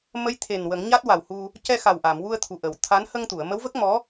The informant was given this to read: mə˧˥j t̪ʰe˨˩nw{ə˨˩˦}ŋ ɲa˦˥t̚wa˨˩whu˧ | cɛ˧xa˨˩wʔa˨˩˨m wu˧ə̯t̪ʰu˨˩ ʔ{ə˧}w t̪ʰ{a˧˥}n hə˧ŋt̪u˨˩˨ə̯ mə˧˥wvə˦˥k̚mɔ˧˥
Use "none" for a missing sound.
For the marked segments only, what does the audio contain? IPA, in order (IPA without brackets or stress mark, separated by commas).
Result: ə˨˩˦, ə˨˩˨, a˧˥